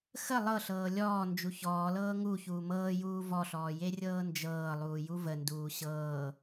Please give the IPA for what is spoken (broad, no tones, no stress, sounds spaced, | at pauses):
x ə lˠ ɤ ɬ ɤː lʲ ɔː n d͡ʒ u ç ɔː l ɤː ŋ u ç uː m ɤː j uː v ɔ ɬ ɔː j e rʲ ɤː n d͡ʒ ɤː lˠ uː j u v ə n d uː ɕ ɤː